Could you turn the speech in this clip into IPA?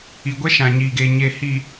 i˨ɡʷɛ˦ʃã˨ ɲiː˨ɡeː˨ ɲeː˨hi˨

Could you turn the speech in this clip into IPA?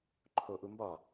ǃʰoʔu mbɒ

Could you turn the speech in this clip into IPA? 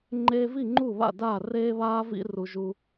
ŋ͡ǃeː˦vi˥˨ ŋ͡ǃu˥˨βa̰˥˨daː˥˨ reː˦βaː˦vḭ˦ ru˦ʒu˦

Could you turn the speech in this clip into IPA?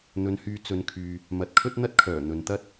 n̪ɵ˨˧nhyː˨˧ t͡sɵ˨˧nkʰyː˨ | mɐ˨˥t̚kʰɵ˥t̚n̪ɐ˥t̚kʰœː˨˩ n̪ɵ˨nt̪ɐ˥t̚

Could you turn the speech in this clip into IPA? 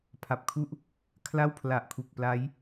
pʰa˨˩p̚kʰu˥˩ʔ | kʰla˥˩wpʰla˨˩ʔkʰu˨˩k̚ pla˦˥j

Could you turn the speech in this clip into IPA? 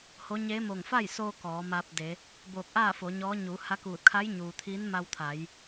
ho˧˥ ɲeː˧˥mo˧˩ŋ fa˥˨jsoː˧ kɔː˩˧ma˧p̚de˩˧ | boː˧˩k̚ʔaː˥˨fo˩˧ ɲɔː˧˥ ɲuː˩˧ha˧˥kuː˧˩t̚ kʰa˧˥jɲuː˩ t̪ʰiː˧˥nma˧wt̪ʰa˩˧j

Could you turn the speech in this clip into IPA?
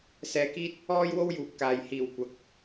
sɛː˧kiː˥t̚ | ɔː˥jwo˥wjuː˨p̚kaː˨j hiː˨˩w kʷɐ˨˥k̚

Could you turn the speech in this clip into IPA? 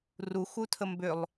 ru xutʰəmbʏlˠ

